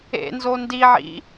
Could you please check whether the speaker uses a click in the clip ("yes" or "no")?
no